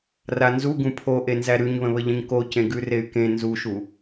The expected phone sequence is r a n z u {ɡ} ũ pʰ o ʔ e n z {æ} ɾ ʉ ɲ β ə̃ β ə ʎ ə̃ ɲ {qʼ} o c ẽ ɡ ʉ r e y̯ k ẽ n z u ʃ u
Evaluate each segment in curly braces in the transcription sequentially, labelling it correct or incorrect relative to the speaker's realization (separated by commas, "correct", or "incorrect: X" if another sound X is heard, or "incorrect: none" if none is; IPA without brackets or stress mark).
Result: correct, correct, incorrect: k